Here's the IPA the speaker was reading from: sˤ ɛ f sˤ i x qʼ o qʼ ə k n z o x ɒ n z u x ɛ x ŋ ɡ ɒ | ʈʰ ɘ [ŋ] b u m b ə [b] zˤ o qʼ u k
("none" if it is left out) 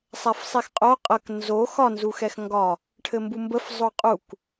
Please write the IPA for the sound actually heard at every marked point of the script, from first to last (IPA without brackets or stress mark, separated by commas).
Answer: m, f